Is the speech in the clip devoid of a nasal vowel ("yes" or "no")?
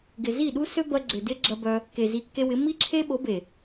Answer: yes